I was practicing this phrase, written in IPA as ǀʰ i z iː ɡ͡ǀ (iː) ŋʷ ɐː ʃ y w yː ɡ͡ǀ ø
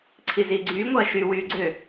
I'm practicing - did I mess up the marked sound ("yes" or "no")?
yes